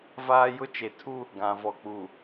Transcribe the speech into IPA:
v aː˦ j ʊ˦ t͡ʃ e˨ tʰ u˦ | ɡ ã˨ v ɔ˨ k͡p u˨

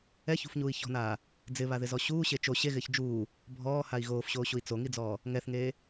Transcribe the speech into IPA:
ɛ ç ṳ f ɲ uː i̯ ç ɔ̤ n aː | d͡z ɪ β a ð ɪ z ɔ ɕ uː ɕ e t͡ʃ o ɕ e ɣ ɪː ç d͡ʒ uː | bʱ ɔː h a i̯ ɣ oː f ɕ oː ɕ u i̯ t͡s o ŋ i d͡z ɔː | ŋ ɛ θ ŋ eː

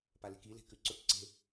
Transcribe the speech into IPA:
p a l e̤ k i l e̤ k ʉ ǀ ɵ k ǀ e̤

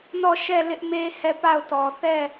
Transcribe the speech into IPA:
n ɔ˦˨ ʃ ɛ˦˨ l ɪ˦ ʔ m e˦ h ɛ˦˨ p a˦˨ ʊ̯ t ɔ˨ θ ɛ˦˨

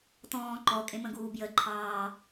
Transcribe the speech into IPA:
t ɔ̃ː ǃ ɔ kʼ ẽ m ə̃ ɡ uː b j ə ǃʰ ɑː

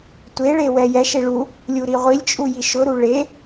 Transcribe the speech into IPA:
tʷ e ɭ e w ɛ j ɛ ʃ e ɭ u | lʲ u ɾ i ʁʷ i lʲ t͡ʃʼ u j i ʃ ʊ ɾ u ɭ e

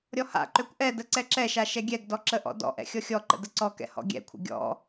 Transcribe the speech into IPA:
ɾʲ ɔ h a̰ ǃ ø kʷ ʔ ɛ d ə ǀ ɛ ǁ ɛ ʃ a ʃ ɛ ɡʲ ɛ ɡ d ɔ ǁ ə ʔ ɔ̰ d ɔ̰ ʔ ɛ̰ xʲ ɔ xʲ ɔ ǃ ə̰ d ə ǀ ɔ k ɛ̰ h ɔ̰ ɡʲ ɛ̰ kʷʰ ə̰ ɡʲ ɔ̰

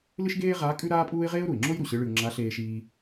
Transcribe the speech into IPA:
l ɨ˥ ʃ ɡ eː˥ ʁ a˧˥ kʼ ʉ˥ ɾ aː˥ pʼ uː˥ ɪ̯ ʁ eː˥ ʊ̯ ɾ u˩ ɪ̯ ŋ͡ǁ o˥ j ɾ u˩ ɕ ɨ˧˥ ɭ ɨ˧ ʊ̯ ŋ͡ǁ a˧˥ ɬ eː˧ ʃ iː˧

